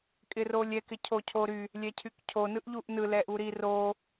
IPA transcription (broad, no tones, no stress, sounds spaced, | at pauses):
kʼ ɪ r o lʲ ɛ k ɪ cʰ o cʰ o ɾ y | lʲ ɛ cʰ y k cʰ o n ɯ ʔ ʎ u ʔ n ɯ l ɛ ʔ u ɾ i r o